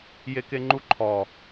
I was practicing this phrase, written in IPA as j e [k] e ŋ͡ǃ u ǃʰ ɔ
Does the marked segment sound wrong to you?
no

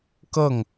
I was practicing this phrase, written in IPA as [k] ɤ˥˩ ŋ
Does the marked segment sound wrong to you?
no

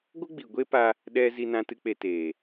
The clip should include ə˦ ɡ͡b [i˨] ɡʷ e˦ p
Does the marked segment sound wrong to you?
no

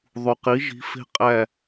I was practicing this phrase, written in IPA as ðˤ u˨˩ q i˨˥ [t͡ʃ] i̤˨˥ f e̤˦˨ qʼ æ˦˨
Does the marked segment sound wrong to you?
yes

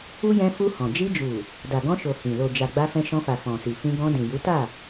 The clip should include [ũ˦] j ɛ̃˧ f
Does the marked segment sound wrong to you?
yes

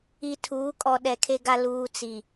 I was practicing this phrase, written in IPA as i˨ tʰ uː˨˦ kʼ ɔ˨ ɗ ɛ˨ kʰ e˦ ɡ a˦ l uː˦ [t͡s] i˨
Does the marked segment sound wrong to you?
no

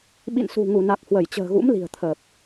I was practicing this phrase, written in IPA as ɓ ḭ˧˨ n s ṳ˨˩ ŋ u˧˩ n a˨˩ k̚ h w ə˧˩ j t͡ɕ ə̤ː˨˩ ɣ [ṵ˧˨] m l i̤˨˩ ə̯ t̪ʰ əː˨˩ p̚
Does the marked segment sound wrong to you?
yes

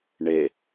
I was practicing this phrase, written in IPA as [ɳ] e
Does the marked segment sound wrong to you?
no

